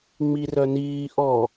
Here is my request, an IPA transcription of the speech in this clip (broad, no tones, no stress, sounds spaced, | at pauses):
ŋ͡m i r œ n iː ʔ ɔ